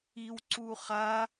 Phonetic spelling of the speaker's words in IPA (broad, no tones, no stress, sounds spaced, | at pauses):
i w ǀ u χ a